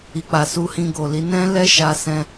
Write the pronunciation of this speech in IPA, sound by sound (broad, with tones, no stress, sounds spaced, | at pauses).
i˨ k͡p a˨ s u˧ h ĩ˧ ɡ o˨ l i˨˦ n ɛ̃˦ l ɛ˦ ʃ a˧ s ɛ̃˦